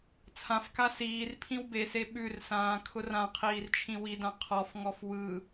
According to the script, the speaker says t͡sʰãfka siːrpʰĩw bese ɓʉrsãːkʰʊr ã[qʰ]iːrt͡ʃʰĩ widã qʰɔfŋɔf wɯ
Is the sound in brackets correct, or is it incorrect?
correct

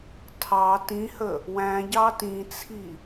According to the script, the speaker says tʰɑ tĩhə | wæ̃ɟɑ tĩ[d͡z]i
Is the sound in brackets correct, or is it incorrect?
incorrect: t͡sʰ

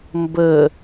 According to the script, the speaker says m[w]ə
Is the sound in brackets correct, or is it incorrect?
incorrect: b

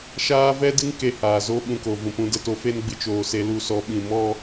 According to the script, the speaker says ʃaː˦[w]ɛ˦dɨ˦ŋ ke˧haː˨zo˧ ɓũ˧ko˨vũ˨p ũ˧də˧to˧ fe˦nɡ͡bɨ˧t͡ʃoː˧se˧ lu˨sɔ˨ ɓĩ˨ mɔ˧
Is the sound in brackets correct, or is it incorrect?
incorrect: v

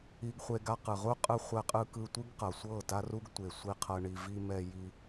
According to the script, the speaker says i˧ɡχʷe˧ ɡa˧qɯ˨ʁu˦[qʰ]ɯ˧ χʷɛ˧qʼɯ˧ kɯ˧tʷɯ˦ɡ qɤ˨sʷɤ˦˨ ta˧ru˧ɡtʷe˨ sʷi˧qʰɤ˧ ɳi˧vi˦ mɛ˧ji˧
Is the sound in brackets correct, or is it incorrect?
incorrect: qʼ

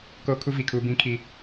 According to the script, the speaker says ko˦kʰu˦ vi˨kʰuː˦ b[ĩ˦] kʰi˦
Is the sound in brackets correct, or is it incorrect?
correct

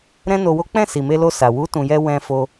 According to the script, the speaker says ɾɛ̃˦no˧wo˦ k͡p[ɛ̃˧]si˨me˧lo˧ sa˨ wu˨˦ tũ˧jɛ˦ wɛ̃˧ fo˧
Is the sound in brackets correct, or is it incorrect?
incorrect: ɛ̃˦˨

